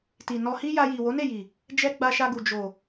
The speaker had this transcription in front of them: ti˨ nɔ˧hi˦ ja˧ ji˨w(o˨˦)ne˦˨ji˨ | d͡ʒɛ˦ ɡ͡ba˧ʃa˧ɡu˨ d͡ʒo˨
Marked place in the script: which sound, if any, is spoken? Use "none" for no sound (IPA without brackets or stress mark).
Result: o˨˦